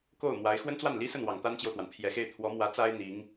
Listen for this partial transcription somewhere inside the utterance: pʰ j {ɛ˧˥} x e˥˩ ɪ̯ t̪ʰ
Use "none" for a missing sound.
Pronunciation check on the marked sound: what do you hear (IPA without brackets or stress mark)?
ɛ˨˩